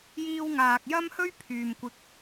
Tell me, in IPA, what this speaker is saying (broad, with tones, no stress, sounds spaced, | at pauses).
j iː˧ w ŋ aː˨ k̚ j ɐ˥ m h ɵ˥ ɥ pʰ yː˨ m kʷ ɪ˧ k̚